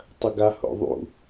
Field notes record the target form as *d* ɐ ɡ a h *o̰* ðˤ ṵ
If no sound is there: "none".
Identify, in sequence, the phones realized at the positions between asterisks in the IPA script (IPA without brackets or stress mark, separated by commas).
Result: tˤ, o̰